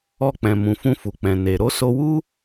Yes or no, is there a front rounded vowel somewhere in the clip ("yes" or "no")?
no